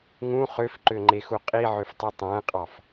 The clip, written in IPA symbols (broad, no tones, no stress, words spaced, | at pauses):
ŋũ χøfǃøŋ͡ǃexu qʼiʕøftˤu tˤæ̃qʼɑf